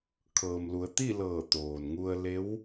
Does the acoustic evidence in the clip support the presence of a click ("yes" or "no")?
no